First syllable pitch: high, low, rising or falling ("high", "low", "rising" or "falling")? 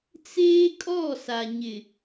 high